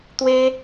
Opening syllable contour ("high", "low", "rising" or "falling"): high